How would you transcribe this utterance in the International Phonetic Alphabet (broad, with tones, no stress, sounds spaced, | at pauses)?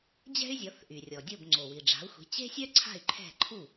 d͡ʑ ɛ̤˥ y̯ zʲ ɔ˩˥ θ ʔ y˩ rʲ ɔ˩ dʲ o˥˩ b ŋ͡ǀ o˩ w i˩ ɖ͡ʐ a̤˩˥ u̯ xʷ i̤˩˥ t͡ɕ e̤˥ sʲ œ˥ ǀʰ a̤˥˩ y̯ ǃʰ ɛ̤˥˩ ǃʰ u˥˩